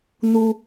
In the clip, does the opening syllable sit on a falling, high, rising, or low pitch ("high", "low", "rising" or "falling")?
high